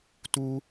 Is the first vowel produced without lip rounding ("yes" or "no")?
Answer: no